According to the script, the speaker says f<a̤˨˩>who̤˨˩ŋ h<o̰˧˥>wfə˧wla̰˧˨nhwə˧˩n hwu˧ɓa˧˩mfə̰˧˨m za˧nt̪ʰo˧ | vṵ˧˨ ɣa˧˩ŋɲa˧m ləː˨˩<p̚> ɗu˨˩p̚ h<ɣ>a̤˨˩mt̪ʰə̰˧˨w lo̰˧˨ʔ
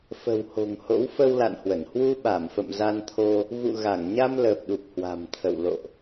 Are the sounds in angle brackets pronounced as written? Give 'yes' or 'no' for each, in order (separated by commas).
no, yes, yes, no